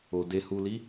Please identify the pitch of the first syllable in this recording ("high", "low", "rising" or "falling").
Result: low